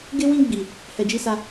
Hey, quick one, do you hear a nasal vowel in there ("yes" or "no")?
yes